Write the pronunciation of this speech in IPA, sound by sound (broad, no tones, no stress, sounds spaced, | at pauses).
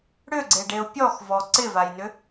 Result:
ɽ ʏ ɡ͡ǀ e ɖ e ʊ̯ pʲ ɔ x v ɔ ǀ ɪ v a j n ʏ